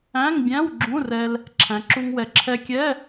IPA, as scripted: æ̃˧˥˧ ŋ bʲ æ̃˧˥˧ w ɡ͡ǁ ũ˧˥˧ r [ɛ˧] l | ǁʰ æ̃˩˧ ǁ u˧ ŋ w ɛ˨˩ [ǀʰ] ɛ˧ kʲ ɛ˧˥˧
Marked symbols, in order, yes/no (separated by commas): yes, no